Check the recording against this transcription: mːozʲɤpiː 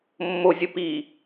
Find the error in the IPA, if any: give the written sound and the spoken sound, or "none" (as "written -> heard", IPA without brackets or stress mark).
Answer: none